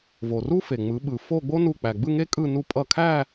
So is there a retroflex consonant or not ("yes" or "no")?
no